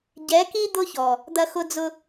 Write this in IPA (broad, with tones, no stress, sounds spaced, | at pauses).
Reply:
ɟ ɛ˨˦ k i˦ d̪ ʊ˦ ç ɔ˨ | d̪ ɐ˦ x ʊ˦ d͡z ʊ˦